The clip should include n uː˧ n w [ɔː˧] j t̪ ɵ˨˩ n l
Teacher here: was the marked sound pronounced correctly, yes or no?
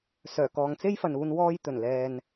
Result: yes